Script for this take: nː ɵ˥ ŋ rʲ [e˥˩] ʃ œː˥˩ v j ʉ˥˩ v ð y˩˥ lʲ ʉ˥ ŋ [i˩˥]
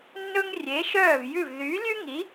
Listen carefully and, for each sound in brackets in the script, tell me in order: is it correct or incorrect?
incorrect: e˩˥, correct

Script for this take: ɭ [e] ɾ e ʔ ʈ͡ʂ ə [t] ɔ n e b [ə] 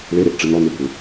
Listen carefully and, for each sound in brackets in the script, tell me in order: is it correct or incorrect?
correct, incorrect: n, incorrect: ʏ

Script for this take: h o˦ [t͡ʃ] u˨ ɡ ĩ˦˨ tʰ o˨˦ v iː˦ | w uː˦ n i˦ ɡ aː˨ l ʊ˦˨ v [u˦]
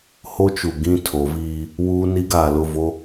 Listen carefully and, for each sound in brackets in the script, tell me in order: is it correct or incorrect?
correct, incorrect: o˦

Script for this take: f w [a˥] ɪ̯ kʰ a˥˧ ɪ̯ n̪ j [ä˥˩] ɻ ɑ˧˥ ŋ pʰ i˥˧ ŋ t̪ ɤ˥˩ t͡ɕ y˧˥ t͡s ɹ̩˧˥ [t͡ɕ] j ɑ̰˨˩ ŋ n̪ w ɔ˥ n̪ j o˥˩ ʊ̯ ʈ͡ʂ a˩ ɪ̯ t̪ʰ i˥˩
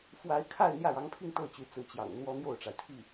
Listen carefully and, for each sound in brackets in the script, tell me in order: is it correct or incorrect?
incorrect: a˧˥, correct, correct

